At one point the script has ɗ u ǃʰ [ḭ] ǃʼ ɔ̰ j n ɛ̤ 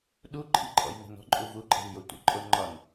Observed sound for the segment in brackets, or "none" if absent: ḭ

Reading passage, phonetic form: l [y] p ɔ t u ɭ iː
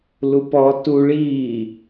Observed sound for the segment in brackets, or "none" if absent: u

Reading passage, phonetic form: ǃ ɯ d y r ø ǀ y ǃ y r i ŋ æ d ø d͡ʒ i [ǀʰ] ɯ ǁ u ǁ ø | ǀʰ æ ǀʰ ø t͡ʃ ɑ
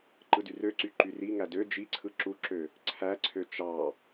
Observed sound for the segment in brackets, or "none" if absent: ǀʰ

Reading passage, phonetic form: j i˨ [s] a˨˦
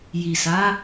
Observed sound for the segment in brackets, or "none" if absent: s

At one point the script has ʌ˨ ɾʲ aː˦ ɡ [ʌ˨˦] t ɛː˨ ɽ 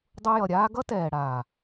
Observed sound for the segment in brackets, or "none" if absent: ʌ˦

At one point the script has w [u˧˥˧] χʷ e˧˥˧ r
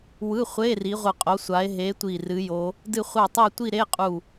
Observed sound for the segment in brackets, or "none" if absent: ɯ˧˥˧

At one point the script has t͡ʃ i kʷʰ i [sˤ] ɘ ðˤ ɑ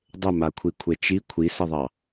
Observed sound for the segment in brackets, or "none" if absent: s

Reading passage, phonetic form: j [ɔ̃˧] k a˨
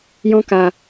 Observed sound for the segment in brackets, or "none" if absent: ɔ̃˧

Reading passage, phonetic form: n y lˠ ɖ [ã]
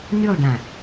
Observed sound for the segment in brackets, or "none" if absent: ã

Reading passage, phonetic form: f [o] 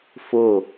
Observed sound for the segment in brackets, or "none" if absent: o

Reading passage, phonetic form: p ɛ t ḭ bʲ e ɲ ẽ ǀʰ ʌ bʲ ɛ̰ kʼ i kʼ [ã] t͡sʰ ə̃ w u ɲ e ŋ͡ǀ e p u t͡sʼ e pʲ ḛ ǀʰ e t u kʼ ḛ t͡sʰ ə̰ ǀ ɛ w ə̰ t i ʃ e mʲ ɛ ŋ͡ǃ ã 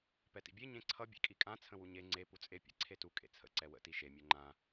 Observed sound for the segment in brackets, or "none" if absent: ã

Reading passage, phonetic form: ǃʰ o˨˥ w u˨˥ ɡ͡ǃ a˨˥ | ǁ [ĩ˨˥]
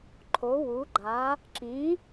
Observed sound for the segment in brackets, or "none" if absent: ĩ˨˥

